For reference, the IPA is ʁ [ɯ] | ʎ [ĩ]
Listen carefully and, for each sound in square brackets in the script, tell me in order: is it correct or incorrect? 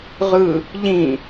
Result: correct, correct

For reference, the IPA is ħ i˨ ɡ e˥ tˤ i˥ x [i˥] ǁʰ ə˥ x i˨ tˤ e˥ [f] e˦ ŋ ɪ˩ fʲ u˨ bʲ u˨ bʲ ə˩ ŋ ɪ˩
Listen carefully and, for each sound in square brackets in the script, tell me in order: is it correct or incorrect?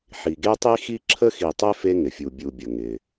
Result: correct, correct

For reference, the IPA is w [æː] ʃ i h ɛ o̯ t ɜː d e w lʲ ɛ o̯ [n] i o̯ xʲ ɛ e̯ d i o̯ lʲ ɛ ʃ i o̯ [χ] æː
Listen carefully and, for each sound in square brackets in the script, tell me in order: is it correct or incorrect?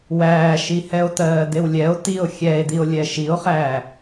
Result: correct, incorrect: t, correct

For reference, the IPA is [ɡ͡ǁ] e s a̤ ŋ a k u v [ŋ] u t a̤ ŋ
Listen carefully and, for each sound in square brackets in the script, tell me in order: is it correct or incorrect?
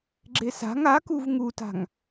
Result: correct, correct

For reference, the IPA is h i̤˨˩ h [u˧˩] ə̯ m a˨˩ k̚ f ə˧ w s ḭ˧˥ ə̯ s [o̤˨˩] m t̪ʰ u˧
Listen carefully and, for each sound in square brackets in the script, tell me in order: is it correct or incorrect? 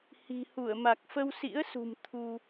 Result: correct, incorrect: ṳ˨˩

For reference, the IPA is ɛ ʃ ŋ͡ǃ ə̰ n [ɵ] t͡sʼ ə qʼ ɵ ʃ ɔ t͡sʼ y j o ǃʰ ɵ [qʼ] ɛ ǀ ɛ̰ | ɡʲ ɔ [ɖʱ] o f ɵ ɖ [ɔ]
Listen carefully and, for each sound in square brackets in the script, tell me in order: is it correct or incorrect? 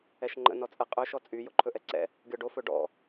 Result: incorrect: ɔ, incorrect: ʔ, incorrect: ɖ, incorrect: ɔ̰

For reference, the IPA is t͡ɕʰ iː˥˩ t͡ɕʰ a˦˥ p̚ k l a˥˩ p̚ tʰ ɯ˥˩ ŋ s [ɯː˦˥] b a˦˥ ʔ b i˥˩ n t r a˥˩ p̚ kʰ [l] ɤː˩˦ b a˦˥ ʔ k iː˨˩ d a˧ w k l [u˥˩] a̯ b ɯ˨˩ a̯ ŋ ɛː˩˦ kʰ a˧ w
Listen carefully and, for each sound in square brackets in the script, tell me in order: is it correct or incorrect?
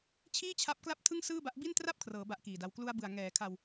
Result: incorrect: ɯː˥˩, incorrect: r, incorrect: u˧

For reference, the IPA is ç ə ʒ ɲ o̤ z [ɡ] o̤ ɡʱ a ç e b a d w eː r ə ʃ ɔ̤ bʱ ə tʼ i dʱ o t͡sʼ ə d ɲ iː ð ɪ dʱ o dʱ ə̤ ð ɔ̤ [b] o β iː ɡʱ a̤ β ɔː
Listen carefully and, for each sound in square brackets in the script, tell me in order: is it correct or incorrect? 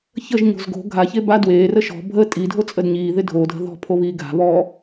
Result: correct, incorrect: pʰ

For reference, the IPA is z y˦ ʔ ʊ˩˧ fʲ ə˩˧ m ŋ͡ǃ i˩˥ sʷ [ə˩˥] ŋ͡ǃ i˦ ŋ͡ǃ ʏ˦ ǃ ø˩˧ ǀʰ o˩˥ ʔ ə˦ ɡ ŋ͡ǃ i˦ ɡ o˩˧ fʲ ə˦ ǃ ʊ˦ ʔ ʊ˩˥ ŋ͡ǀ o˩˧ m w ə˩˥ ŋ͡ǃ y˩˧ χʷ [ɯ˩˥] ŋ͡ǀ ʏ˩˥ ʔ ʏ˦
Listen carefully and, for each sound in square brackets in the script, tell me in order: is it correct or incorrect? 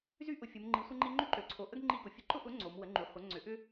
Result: incorrect: ə˦, incorrect: ə˩˥

